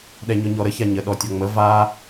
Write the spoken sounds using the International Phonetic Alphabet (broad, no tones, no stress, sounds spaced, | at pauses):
ɗ ɛ ɲ ɔ ɲ ɔ ɾ ə ç a ɲ ə ɗ ɔ tʲ ʌ ŋ͡m ə v a